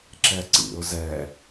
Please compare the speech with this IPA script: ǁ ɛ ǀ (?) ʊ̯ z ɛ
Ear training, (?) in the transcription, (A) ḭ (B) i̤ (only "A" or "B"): A